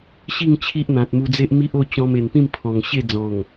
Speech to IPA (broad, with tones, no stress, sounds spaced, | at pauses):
ɕ i˥˧ ŋ t͡ɕʰ i˦ ʔ n̪ ã˨ t̚ m u˧ d͡z e˦ ʔ m i˦ ʔ o˥˧ t͡ɕ ɔ̃˧ m e˨˩ n p ĩ˥˧ m pʰ ɔ̃˨˩ ŋ ɕ e˥˧ d͡z ɔ̃˨˩ ŋ